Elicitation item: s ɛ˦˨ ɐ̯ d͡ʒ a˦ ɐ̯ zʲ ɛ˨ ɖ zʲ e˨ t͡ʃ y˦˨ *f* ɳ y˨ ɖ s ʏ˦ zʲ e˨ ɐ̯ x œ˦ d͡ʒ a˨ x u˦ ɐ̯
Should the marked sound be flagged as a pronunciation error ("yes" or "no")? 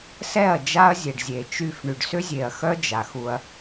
no